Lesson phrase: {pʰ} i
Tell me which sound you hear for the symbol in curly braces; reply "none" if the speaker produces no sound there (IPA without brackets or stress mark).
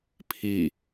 pʰ